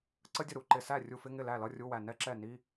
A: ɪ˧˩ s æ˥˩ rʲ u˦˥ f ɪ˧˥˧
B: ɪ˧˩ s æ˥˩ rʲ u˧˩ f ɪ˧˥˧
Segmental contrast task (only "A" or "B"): B